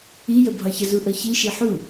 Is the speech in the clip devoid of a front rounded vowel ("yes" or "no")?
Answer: yes